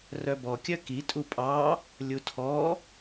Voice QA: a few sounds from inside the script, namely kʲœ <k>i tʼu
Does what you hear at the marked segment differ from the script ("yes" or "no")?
no